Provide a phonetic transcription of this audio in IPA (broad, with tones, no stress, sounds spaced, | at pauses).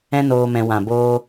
ɛ̃˦ n oː˧ m ɛ̃˧ w ã˨ b oː˦